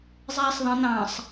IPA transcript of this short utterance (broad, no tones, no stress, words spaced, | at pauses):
zˤɛːsˤðˤə̃ n̪ɑ̃sˤ